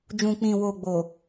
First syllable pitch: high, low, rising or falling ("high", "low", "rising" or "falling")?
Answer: low